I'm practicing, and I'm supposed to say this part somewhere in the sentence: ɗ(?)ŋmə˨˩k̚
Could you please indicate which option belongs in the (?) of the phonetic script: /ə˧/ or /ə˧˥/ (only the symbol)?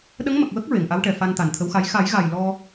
ə˧˥